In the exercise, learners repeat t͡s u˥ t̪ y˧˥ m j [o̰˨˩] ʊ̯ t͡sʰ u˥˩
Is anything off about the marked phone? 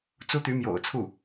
no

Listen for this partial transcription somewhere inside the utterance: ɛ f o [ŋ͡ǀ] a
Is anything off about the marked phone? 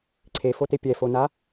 yes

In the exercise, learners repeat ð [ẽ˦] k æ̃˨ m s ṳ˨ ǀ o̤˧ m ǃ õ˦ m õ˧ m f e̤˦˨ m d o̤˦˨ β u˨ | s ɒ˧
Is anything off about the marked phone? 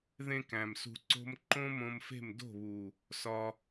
no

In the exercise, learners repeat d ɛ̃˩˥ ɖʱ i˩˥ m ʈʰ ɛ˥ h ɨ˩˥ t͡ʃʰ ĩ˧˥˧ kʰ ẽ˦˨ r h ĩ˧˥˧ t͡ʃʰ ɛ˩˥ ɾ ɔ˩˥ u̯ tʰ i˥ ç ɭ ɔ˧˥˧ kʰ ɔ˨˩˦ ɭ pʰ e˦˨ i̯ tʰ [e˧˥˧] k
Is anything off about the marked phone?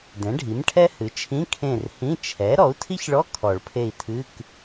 yes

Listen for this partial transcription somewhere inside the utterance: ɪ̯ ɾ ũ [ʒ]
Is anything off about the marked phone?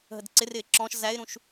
yes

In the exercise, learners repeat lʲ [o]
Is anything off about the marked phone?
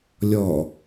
yes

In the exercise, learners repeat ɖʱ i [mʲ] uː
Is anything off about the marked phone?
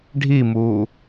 yes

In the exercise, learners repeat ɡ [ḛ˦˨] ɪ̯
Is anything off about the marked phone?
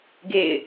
no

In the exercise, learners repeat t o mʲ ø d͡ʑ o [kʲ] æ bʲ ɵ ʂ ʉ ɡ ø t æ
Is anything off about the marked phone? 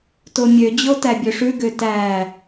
yes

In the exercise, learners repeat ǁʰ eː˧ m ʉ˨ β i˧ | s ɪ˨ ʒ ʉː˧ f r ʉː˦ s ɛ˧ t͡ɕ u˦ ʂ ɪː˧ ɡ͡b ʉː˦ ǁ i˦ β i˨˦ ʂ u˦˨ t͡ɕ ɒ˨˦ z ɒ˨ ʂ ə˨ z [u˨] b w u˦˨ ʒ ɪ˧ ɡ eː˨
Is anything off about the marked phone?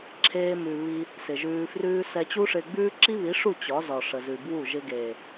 yes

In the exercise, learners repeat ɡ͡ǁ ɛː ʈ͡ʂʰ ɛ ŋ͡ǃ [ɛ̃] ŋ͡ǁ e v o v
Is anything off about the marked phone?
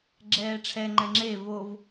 no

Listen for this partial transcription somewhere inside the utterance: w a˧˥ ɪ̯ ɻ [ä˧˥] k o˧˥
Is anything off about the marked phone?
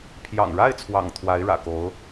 yes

